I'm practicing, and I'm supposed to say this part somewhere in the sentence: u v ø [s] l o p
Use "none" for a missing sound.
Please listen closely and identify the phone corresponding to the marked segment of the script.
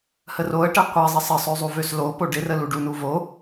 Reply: s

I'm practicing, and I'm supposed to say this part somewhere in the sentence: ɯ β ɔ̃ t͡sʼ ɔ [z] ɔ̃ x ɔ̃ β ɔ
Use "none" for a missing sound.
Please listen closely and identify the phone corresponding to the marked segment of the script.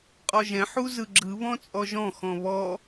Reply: ʒ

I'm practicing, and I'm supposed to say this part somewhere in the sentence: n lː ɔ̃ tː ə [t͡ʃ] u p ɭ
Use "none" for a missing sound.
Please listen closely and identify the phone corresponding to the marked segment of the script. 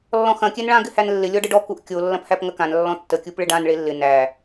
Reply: kʲ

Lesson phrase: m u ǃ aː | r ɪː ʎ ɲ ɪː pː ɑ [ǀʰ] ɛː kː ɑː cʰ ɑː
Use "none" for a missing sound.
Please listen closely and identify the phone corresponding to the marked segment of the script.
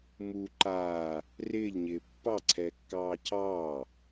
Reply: ǀʰ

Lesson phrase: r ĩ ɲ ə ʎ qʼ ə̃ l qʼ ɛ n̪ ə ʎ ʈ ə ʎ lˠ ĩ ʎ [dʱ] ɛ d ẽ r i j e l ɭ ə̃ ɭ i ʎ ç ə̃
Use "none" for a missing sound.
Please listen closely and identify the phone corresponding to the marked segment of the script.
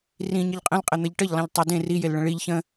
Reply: tˤ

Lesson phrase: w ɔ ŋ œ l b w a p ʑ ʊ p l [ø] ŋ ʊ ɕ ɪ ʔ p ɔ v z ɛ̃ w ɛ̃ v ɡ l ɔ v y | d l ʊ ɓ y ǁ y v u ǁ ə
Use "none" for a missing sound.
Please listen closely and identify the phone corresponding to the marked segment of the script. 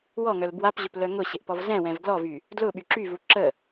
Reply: œ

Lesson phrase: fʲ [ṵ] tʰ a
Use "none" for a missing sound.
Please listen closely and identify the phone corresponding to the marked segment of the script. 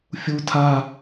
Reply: u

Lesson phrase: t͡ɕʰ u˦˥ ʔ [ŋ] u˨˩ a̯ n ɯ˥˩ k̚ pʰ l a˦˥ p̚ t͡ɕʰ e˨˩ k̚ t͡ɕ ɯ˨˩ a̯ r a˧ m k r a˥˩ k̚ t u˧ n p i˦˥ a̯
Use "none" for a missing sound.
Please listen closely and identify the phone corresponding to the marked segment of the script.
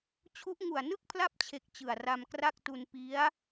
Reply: ŋ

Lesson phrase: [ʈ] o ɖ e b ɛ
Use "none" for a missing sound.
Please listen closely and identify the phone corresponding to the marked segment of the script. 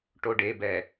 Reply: ʈ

